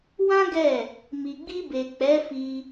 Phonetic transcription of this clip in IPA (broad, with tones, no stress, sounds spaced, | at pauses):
w ã˦ ɡ ɛ˦˨ | m i˨ ɡ͡b i˧ b e˨ k͡p ɛ˨˦ f i˧